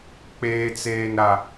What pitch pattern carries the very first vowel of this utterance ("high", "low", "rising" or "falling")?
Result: high